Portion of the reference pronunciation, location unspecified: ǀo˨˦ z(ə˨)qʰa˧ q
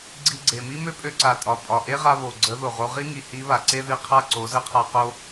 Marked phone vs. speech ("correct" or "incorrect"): incorrect